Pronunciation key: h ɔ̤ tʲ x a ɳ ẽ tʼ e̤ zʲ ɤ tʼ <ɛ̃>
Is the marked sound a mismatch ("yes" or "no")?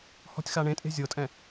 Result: no